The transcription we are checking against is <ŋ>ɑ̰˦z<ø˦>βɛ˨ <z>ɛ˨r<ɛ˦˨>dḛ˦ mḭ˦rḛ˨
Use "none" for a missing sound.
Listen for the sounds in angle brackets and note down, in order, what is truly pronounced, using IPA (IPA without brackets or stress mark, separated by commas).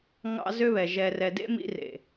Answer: ŋ, ø˦, ʒ, ɛ˨